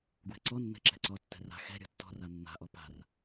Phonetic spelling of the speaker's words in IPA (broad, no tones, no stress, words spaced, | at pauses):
ɡwɛ̤ǀɔnːɛ̤ ǁɛ̤ǀɔtːɛ̤ ra̤ xɛ̤ ɾʲɔ̤tːɔ̤ra nːa̤ʔɔ pa̤r